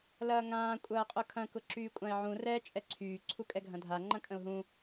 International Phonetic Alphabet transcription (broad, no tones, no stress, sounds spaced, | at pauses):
l ɐː ŋ ãː kʷʼ ɐː qʼ ʊ kʰ ɐ̃ k ʊ ǁ yː kʷʼ ã ɪ̯ ʕ ũ r ɛ t͡ʃʼ ɛ ǀʰ yː ǀʰ u kʼ ɛ ɡʱ ɐ̃ dʱ a ŋ͡ǃ ɐ̃ kʼ ə̃ ʊ̯ ɦ ũ